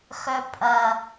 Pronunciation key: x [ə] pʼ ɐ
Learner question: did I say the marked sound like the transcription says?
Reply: no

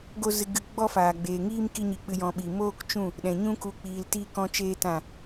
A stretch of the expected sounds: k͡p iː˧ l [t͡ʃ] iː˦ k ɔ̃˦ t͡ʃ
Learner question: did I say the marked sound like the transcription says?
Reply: no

